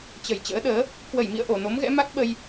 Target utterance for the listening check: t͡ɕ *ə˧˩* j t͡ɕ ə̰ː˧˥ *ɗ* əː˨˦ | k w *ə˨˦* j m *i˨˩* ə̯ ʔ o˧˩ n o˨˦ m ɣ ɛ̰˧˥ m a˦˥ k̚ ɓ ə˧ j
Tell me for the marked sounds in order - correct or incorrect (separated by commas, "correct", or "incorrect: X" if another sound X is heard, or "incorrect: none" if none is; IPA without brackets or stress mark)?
correct, correct, incorrect: ə˧˩, incorrect: ḭ˧˨